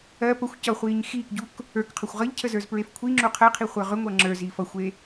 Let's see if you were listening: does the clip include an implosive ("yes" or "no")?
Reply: no